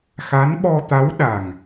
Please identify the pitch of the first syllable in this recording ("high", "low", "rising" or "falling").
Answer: rising